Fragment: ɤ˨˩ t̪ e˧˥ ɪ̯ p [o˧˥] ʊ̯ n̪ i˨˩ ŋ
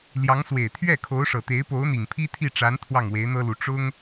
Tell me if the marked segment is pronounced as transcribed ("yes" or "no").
yes